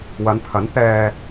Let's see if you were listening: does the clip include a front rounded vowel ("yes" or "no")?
no